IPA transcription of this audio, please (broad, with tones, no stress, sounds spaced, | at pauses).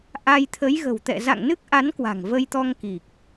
ʔ a˧ j t̪ʰ ə˨˦ j ɣ ə̤˨˩ w t̪ ɛ̰˧˨ z a̰˧˨ ŋ n ɨ˦˥ k̚ ʔ a˨˦ n k w a̤˨˩ ŋ v ə˧ j t̪ ɔ˧ ŋ k i˨˩ k̚